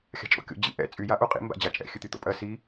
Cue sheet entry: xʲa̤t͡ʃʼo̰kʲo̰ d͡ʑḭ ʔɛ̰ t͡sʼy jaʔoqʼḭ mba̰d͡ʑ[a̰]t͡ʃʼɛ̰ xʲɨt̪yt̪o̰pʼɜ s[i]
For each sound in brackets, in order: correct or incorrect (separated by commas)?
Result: incorrect, correct